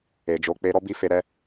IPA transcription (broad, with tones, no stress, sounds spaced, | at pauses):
e˨ d͡ʒ o˨˦ k͡p e˧ ɾ ɔ˦ b i˦ f e˧ ɾ ɛ˦